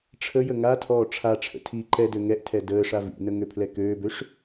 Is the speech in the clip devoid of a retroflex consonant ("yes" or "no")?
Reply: no